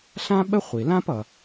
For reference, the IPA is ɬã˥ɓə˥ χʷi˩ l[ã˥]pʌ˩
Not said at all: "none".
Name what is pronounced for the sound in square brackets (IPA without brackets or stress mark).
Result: ã˥